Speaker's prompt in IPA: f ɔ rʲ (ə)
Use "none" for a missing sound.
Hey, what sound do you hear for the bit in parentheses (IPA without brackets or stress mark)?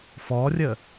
ə